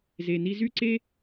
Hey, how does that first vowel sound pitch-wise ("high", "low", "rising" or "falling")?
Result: low